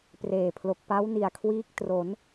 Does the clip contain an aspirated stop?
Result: yes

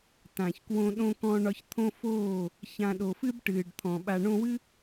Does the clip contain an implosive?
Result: yes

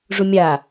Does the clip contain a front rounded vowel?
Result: no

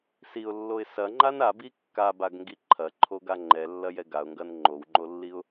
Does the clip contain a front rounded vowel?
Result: no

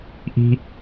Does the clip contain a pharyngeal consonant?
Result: no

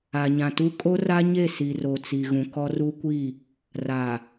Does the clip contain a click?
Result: no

